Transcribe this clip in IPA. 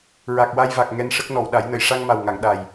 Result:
ɹa˨˩k̚wa˧jva˨˩k̚ ŋɛ˧nʂə˦˥k̚ nɔ˨˩˨wɗa˨˩˦jnə˨˩˨j ʂa˧ŋma˨˩wŋa˨˩˨ŋ ɗa˨˩j

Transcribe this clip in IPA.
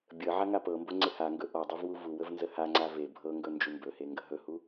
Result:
bʲə ʕaŋapɤmbo ŋ͡ǀɪhaŋɡɵ ʔɔdˤuv wuvuwəv nzəhaŋ͡ǀa ve bʱɤŋɡɵ nd͡ʒumbɵhe ŋɡəɦɵhu

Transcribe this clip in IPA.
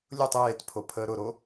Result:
lʲʊtˤ eːtpʰopʰəː ɾʊɾo

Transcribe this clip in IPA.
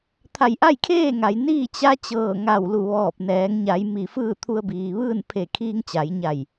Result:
t̪ʰa˧˩jʔa˥˨jkʰeː˥˨ŋa˩j niː˥˨t͡ɕa˧˥ t͡ɕɤː˧˩ŋa˧˩wlu˧˩ ʋɔː˧˩p̚nɛː˩˧ŋ ɲa˩˧j mi˧˩ fɯː˥˨t̪ʰu˧ə̯biː˩ʋɯː˥˨n pʰe˧˩ kʰiː˧ŋt͡ɕa˩˧jɲa˧˩j

